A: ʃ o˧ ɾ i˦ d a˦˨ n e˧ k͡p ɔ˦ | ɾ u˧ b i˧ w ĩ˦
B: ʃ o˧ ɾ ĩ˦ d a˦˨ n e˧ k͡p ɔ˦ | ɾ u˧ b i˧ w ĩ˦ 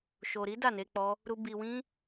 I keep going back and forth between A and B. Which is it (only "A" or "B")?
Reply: A